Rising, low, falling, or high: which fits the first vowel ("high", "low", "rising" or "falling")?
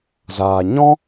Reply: low